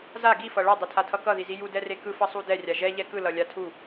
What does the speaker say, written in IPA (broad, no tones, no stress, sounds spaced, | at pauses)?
z a ɡ i f ʌ ɭ ʌ dˤ ɛ tʰ a tʰ ʌ k ʌ ð i z i j u d ɛ r e k ɯ f ʌ sˤ u d ɛ rʲ a ʒ ɛ ʎ ɛ k ɯ l ʌ lʲ a tʰ u